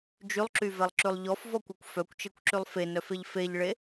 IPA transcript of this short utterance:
d͡ʒ y lˠ ǁ y v ɛ lˠ ǁ ʉ lˠ ʎ ɔ f v ɔ kʷ œ kʷ f œ kʷ t͡ʃ e kʷ ǁ y lˠ f e n œ f e ʎ f e ʎ ɭ e

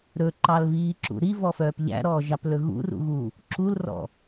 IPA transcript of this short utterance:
ɾ ɵ ǃ ɑ l v iː ǁ ṵ ɾ i v ɔ f œː p ʎ æ̰ ɾ ɔː ʒ ɑ p l ɵ ɣ ṵ r ṵ ɣ u | ǁ u l r ɔ̰

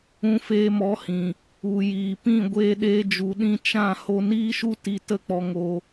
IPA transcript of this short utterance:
ũ˧ f eː˧ m ɔ˨˦ h ĩ˨ | u˨ j iː˨ p ĩ˦˨ ɡʷ eː˧ ɗ eː˧ d͡ʒ u˨ ɗ ĩ˧ t͡ʃ ã˦˨ h o˧ n iː˦ ʃ u˦ t i˧ t ə˦˨ k͡p ɔ˧ ŋ o˧

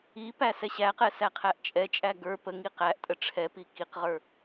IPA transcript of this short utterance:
i p æ s ɛ ɕ æ q ɛ s æ qʰ æ ʔ t͡ʃʼ ɛ t͡ʃʼ æ ɡ ə˞ p ə ŋ i q æ ʔ tʼ ə ʈ͡ʂʰ ɛ p i k i q ʁ ə˞

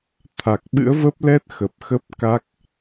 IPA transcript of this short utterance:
t̪ʰ a˨˩ k̚ ɓ ɨ̰˧˥ ə̯ v ə˦˥ p̚ l ɛ˦˥ t̚ x ə˨˩ p̚ x ə˦˥ p̚ k a˦˥ k̚

